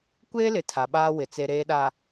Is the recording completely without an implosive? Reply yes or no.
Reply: no